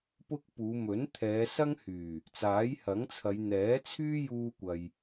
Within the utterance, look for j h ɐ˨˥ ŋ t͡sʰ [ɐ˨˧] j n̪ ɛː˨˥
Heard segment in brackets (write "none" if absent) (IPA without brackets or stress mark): ɐ˨˧